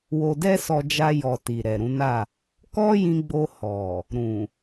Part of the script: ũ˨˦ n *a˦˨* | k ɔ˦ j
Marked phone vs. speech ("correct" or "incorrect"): correct